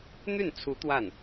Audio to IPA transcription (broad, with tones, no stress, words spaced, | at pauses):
n̪y˥˩nt͡sʰu˧˥ t̪wa˥˩n